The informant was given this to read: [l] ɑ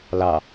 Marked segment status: correct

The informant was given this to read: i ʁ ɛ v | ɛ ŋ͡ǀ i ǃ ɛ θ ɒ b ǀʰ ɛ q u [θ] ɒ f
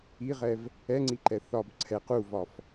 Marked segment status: incorrect: v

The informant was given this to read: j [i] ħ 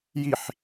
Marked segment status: correct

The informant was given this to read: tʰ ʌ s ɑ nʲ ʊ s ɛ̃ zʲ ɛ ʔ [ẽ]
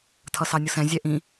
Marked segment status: incorrect: ĩ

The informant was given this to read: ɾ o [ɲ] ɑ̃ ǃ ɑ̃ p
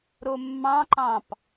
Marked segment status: incorrect: mː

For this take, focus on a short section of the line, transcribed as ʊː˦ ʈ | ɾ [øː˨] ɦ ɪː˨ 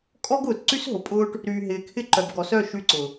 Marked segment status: incorrect: yː˨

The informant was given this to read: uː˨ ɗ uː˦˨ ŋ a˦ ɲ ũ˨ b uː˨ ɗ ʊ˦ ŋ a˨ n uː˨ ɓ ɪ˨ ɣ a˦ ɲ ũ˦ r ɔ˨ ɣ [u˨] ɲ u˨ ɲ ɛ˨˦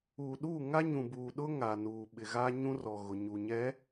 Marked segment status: incorrect: ʊ˨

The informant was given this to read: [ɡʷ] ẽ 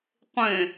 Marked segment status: incorrect: qʷ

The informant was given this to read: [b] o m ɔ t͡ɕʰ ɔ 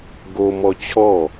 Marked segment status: incorrect: ɡ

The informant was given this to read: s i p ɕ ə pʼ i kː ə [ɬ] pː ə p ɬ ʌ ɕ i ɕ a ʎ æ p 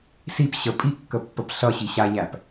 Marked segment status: incorrect: none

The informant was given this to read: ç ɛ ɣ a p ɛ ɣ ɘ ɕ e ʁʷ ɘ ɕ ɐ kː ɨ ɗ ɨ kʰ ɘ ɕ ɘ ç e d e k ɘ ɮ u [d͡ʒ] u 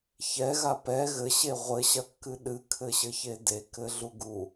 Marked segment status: incorrect: ɡ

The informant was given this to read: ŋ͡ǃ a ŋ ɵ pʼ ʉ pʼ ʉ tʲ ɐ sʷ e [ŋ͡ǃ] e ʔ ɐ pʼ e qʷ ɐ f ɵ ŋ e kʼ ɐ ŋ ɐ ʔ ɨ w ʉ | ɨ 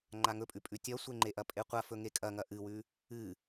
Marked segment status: correct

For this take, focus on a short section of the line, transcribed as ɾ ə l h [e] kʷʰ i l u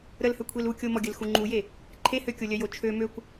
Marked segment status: incorrect: ø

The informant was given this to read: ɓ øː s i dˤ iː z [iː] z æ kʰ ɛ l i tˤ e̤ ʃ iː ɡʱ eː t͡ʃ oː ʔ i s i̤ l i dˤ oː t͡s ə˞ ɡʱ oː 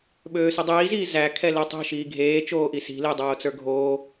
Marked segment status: correct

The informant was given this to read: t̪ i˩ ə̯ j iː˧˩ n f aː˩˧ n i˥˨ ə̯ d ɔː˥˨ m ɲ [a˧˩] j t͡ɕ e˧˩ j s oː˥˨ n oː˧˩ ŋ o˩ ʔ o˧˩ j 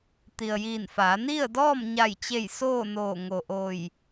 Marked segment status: correct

